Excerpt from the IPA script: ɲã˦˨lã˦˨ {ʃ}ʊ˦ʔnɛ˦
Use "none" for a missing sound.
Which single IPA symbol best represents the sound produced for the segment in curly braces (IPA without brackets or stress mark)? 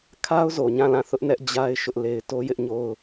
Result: θ